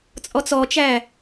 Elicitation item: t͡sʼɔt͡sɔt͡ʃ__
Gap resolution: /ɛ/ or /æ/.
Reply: æ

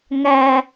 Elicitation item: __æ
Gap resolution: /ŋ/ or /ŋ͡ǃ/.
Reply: ŋ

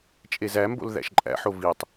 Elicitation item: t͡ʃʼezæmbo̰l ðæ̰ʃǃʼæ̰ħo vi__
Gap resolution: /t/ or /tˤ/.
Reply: tˤ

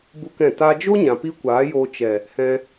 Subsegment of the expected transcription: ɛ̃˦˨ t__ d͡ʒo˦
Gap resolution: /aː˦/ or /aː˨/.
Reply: aː˦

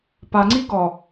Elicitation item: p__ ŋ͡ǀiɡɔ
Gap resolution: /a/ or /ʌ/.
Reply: a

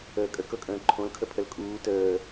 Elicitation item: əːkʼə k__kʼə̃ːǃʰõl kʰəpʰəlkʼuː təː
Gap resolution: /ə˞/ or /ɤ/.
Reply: ɤ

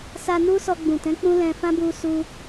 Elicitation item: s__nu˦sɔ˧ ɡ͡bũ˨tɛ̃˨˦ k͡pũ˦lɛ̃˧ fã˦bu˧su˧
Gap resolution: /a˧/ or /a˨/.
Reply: a˧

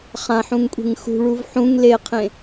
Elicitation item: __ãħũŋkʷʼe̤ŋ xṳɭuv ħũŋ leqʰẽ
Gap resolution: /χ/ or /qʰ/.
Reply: χ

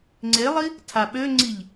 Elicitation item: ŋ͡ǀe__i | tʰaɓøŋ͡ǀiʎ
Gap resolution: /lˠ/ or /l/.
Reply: lˠ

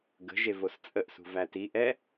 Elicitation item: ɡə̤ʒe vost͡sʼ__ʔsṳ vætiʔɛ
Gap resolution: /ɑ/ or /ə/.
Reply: ə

